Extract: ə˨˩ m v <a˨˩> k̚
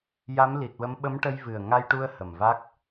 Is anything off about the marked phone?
yes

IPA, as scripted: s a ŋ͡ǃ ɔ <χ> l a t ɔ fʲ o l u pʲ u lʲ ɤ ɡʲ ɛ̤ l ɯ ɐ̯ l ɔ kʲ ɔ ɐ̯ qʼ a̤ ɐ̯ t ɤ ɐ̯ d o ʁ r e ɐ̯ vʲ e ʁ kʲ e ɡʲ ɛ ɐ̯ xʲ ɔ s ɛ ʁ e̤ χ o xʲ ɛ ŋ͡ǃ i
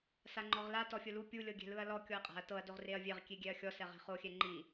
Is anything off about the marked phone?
yes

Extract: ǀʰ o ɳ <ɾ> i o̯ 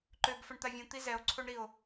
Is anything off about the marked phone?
no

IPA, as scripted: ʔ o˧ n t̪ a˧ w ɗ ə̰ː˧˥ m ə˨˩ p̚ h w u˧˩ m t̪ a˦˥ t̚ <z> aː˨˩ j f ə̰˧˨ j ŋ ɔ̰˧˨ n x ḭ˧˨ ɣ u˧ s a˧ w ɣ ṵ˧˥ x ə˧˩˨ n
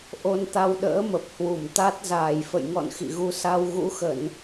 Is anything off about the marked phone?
no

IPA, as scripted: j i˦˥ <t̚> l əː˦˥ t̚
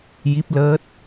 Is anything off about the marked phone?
yes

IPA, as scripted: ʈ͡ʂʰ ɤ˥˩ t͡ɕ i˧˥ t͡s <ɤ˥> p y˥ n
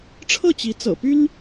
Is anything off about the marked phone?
yes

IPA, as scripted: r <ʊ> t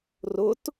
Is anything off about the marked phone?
no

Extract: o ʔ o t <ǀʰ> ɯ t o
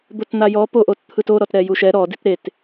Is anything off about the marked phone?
yes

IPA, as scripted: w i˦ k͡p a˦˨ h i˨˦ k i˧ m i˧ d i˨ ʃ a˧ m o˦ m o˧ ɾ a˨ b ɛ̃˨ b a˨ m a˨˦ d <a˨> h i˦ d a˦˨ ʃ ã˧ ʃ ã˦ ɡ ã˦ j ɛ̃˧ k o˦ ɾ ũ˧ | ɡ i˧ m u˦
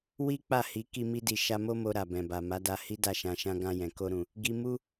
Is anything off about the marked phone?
yes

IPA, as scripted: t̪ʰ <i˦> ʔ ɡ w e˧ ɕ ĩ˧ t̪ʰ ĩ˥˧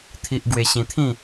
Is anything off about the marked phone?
no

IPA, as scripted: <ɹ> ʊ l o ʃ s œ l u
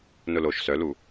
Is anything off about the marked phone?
yes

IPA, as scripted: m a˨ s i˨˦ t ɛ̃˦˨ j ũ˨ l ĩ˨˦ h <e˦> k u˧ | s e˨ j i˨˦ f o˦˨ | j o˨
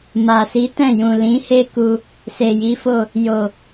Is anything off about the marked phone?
no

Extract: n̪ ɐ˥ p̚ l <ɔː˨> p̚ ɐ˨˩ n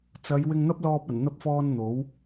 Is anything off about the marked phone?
yes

